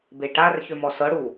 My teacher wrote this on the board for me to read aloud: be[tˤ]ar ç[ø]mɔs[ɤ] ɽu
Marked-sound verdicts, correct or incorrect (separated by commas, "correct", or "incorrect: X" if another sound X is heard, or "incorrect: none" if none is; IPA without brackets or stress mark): incorrect: ʈ, correct, correct